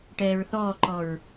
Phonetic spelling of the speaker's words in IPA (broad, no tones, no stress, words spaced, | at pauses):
ʈɛːɹθɔːǃɔɹ